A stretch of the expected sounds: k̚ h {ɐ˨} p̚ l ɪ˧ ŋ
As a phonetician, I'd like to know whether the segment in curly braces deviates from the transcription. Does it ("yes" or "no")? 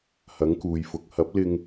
yes